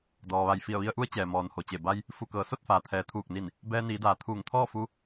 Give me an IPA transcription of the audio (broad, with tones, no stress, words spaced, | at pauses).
dɔː˩ʋa˧˩j fi˧˩ə̯ʋi˧ə̯ʔu˧˥ə̯ t͡ɕɛː˩ mɔː˩n ho˩t͡ɕe˧˩ ba˧j | fu˧˩kɤː˩˧ so˥˨t̚faː˩t̪ʰɛː˩˧ t̪ʰuː˧˩k̚ni˧˩n | bɛː˧niː˩˧daː˩ t̪ʰuː˧˩ŋt̪ʰɔː˥˨ fu˧˥